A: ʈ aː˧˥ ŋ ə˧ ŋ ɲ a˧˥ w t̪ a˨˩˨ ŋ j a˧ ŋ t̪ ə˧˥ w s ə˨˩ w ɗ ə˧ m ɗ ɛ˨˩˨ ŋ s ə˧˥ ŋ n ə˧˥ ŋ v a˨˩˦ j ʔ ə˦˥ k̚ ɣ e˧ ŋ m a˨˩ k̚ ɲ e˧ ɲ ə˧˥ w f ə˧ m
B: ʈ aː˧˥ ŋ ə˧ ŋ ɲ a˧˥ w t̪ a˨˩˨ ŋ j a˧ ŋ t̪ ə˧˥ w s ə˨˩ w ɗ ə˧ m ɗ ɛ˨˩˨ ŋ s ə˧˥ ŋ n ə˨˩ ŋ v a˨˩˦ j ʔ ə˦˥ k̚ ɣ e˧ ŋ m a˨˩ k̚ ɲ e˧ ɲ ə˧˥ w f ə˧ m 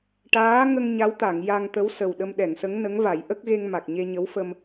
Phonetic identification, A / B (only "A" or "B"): A